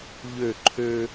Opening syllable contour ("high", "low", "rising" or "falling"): falling